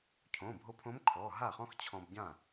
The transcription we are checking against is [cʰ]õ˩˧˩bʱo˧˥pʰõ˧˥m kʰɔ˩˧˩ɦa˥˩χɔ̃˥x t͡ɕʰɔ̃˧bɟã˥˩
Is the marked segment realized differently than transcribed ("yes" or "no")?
no